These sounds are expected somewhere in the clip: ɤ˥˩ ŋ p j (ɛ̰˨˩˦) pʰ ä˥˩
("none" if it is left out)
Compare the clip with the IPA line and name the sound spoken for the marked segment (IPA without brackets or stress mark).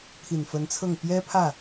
ɛ˥